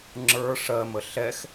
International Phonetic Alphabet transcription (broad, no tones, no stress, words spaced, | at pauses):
ŋ͡ǁə˞ ʂɜmə ɬɛx